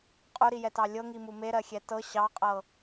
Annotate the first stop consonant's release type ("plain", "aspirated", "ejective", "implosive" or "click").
ejective